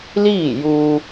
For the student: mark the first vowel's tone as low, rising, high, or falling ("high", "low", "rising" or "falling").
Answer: falling